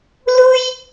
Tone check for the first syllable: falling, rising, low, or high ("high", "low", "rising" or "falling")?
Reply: high